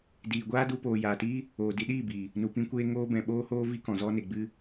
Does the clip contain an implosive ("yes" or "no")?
yes